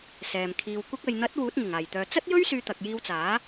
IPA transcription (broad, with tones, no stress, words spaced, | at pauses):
sɛː˨mkʰiː˧w kʷɐ˧k̚ɐ˨j n̪ɐ˨˥t̚ wuː˨˥t̚ŋɪ˨˩ŋaː˨˩jt̪œː˨ t͡sɐ˥t̚jɵ˥ɥ syː˧t̪ɐ˨k̚jiː˧wt͡saː˨˥